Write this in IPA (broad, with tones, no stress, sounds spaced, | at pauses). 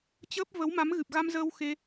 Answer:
t͡ɕ əː˦˥ p̚ v ə˨˦ w m a˨˦ m ɣ ɨ˨˩ p̚ ɣ a˧ m z əː˧ w x e˧